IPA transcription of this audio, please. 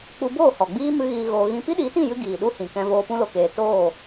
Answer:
k͡p u˧ b oː˦˨ h ɔ˨ ɡ͡b iː˦ m ɨ˦ ɣ iː˧ ɣ oː˧ ɣ ĩ˦ p i˦ ɗ i˨˦ t ĩ˦˨ j ɨ˧ ɡ iː˨ ɗ u˦ h ĩ˨ k ɛ̃˧ v oː˧ p ũ˧ l o˨ k eː˨ t oː˦˨

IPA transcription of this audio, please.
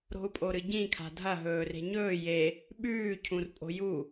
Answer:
ɾ o̤ u̯ pʼ o ɾ ɨ ɟ ĩ kʰ a̤ dʱ ɐ ɦ ɵː r e̤ ɲ ɵː j e | ɓ ʉː cʰ ũ r pʼ o̤ j u

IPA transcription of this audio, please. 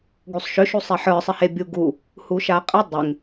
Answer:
ɡ u sˤ ʃ ʏ ʃ u sˤ e ħ ə˞ sˤ ɪ h e bʲ u ɡ u | h u ʃ a qʼ ɪ dˤ ɪ ŋ

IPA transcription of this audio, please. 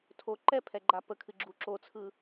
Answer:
tʰ o ǃ ɛ pʰ ɛ ɡ͡ǃ a p ə kʰ ɨ ɡ͡ǁ u ǁ o t͡sʰ ɯ

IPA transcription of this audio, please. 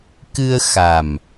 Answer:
k ɨ˧ ə̯ x a˨˩ m

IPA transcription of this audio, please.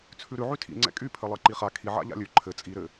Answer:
t͡sʰ ʉ ɾ ʉ ʕ y tʰ ḭ ŋ͡ǀ ɛ̰ kʼ y pʰ ɘ lˠ ɘ ǃ i χ a kʰ i ʕ a̰ ʎ a̰ lʲ ʉ ǃʰ ɘ t͡sʼ i ɾ ɘ

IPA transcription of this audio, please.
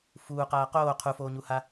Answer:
f uː q aː q oː qʰ u f oː ɲ u h a

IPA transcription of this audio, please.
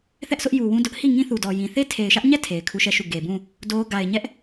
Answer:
θ ɛ˦ ʔ s ʊ˦ ʔ j u˨ w ũ˦ d ʊ˦ ʔ h i˦˨ ŋ ĩ˦ θ u˨ d ɔ˨ j ĩ˨ θ e˦ tʰ e˨ ɪ̯ ʃ ä˦ ʔ ɲ ɛ˦˨ tʰ e˨ ɪ̯ kʰ u˦ ʃ ɛ˦˨ ʃ u˦˨ ɡ e˨ b ũ˦˨ | d o˦ ɡ a˨ ɪ̯ ɲ ɛ˦ ʔ

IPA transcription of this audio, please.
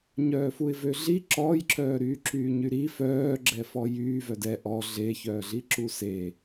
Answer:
ɲ œː f u ɪ̯ v ø ɮ i ǁ ɔː j ǁ œː ɾ yː ǁ yː ɲ y ɾ i f œː ɡ͡ǁ ɛ f ɔ j yː v œ d ɛ ʔ ɔ ɮ e ç œː ɮ i ǁ u s e

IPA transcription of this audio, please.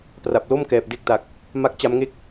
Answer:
p r a˨˩ p̚ l o˥˩ m k ɛː˨˩ p̚ d e˥˩ k̚ t a˨˩ k̚ | m a˥˩ k̚ t͡ɕ a˦˥ m ŋ e˥˩ k̚

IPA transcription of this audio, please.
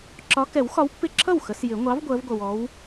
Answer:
ǁ ɒ˨˦ k ɛ˨˩˦ w x ɒ˨˦ w pː ɪ˧˥˧ ǁʰ ʌ˥˩ w x ə˨˦ s j ɪ˨˩˦ ŋʷ ɑ˨˦ v ɡʷ ɜ˨˦ v ɡʷ ʌ˨ w ɔ˨˦ w

